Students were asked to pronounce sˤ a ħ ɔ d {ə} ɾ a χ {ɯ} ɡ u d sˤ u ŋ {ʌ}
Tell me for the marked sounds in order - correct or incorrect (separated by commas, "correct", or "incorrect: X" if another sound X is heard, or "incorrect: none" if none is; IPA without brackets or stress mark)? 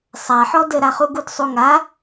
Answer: correct, incorrect: u, incorrect: a